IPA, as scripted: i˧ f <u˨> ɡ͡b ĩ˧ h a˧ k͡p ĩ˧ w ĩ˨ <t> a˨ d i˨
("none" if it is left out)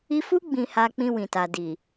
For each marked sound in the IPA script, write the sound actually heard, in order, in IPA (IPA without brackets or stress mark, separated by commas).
u˦, t